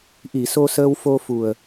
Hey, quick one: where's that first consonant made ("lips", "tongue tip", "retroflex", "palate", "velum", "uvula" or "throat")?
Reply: throat